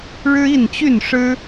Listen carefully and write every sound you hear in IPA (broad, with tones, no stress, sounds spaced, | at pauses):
ɻ ɻ̩˦ i˥˨ n t͡ɕ y˥˨ n ʂ ɻ̩˦